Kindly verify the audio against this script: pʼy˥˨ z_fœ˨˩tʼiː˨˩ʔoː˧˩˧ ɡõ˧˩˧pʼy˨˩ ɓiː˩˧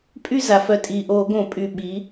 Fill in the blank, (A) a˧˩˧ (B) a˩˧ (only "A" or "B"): B